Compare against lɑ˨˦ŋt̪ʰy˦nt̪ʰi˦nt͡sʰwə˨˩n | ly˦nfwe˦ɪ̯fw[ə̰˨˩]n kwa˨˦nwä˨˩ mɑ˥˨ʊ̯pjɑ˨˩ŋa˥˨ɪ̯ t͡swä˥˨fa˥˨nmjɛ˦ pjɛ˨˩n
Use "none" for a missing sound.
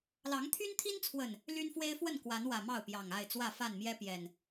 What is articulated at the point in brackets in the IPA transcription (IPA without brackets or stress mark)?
ə˥˨